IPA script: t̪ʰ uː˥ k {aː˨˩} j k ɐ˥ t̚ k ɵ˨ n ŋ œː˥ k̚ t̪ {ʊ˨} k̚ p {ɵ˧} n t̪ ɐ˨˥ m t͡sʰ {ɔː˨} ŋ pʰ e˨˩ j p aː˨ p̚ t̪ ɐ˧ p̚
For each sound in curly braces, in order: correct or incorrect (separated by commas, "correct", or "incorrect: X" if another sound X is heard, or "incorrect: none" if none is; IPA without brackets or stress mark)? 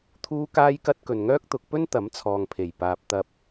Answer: incorrect: aː˥, incorrect: ʊ˨˥, incorrect: ɵ˥, correct